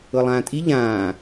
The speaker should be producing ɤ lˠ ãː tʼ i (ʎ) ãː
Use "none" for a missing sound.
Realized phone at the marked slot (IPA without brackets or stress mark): ʎ